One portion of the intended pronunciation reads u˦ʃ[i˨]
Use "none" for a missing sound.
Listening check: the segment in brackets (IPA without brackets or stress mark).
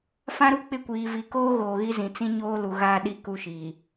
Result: iː˨